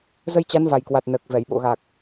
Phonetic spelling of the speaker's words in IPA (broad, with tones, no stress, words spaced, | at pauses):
zə˧jt͡ɕa˨˦nva˨˩jkwa˨˩t̚ nəː˨˩k̚vɛ˧˩jɓo̰˧˨ɣa˨˩k̚